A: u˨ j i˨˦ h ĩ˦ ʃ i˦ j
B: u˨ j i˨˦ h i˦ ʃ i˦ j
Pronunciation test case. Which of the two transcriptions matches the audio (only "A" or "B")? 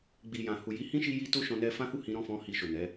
A